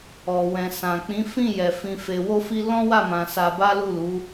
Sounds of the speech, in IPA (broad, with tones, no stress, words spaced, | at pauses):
ɔ˨wɛ̃˨sã˨ k͡pĩ˨˦fĩ˦˨ jɛ˨ fĩ˨fe˨wo˧fi˧ lɔ̃˦wa˦˨mã˨ sa˧ba˦lu˦˨lu˨˦